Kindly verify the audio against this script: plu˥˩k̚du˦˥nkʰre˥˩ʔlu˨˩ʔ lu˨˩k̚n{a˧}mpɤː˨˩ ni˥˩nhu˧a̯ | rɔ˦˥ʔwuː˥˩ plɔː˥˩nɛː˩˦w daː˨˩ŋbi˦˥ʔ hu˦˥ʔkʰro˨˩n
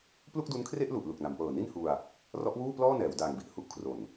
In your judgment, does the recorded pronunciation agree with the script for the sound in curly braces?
no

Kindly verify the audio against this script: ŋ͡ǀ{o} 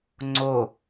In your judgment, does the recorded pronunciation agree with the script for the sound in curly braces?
yes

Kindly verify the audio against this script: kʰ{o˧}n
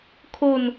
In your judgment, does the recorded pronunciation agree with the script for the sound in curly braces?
yes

